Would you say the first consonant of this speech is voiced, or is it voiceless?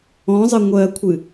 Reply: voiced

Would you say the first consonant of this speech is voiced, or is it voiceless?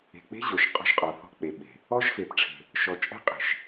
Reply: voiceless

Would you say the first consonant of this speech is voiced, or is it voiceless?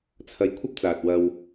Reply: voiceless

